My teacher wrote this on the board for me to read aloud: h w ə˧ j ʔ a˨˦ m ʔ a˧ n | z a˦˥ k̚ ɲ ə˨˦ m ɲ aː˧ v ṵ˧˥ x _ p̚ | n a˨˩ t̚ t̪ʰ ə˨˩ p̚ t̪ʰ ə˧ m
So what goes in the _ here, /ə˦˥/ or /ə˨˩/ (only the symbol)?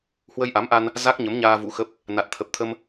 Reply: ə˦˥